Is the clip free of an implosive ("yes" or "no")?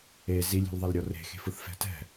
yes